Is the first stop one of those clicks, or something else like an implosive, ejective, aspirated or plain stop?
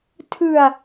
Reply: aspirated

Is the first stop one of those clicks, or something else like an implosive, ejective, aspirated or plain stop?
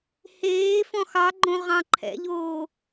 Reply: click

